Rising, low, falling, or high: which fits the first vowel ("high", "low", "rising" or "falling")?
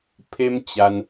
high